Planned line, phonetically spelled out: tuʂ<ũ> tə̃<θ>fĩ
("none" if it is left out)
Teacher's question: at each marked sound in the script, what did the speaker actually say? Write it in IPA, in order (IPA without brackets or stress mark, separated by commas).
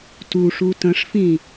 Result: u, ʂ